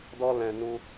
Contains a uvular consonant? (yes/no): no